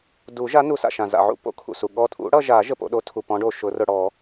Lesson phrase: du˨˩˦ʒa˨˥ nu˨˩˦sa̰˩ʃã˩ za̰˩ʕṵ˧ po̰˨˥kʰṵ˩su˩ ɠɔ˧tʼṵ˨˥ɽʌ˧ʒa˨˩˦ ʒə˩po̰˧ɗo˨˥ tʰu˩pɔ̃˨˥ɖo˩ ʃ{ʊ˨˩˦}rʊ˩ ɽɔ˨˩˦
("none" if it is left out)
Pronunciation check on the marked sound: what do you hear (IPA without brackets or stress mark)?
ʊ˨˩˦